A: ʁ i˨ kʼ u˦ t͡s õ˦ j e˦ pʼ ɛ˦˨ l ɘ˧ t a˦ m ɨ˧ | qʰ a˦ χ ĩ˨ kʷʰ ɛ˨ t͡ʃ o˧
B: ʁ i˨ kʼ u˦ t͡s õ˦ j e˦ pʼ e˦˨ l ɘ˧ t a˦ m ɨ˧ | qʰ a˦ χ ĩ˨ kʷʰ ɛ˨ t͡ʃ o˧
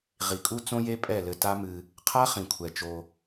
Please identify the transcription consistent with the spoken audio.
A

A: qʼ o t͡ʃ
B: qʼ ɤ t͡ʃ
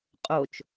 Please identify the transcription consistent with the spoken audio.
A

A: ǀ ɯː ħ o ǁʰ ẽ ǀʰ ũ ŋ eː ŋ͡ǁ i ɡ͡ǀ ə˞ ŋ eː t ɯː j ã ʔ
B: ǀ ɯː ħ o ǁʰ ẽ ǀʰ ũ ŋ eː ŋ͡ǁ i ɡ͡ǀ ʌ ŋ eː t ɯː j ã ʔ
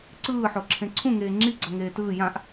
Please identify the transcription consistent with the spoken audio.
B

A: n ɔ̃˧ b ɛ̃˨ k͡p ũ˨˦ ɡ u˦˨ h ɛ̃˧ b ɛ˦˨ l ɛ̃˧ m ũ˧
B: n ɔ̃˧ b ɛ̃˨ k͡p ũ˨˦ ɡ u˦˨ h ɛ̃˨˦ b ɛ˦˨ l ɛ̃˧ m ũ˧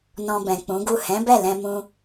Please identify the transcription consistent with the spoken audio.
B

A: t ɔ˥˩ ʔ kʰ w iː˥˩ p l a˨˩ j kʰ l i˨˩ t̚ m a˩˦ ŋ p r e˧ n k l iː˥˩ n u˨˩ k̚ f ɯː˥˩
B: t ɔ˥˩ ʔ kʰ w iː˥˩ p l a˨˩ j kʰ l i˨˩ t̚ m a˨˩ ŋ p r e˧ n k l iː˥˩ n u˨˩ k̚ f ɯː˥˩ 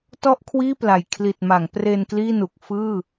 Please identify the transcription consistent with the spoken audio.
A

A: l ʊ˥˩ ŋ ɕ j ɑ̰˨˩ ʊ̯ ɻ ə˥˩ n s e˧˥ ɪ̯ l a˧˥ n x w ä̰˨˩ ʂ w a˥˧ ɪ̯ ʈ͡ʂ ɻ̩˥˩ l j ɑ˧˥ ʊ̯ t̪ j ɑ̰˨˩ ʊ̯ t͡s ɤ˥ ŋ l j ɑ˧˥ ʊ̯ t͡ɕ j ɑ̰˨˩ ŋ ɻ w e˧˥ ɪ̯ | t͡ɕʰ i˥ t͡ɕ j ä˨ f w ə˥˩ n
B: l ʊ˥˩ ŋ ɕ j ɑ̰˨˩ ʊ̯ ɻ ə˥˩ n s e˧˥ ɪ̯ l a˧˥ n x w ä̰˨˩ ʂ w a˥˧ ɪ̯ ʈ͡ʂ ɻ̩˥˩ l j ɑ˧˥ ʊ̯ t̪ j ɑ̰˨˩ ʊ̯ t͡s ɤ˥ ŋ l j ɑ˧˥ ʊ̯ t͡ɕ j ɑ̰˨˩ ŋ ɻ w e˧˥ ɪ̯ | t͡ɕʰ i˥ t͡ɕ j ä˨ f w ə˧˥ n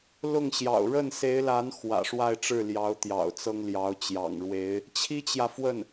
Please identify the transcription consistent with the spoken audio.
A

